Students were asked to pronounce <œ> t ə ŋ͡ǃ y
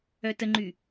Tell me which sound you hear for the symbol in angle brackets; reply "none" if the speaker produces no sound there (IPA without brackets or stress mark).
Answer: œ